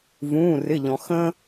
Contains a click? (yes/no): no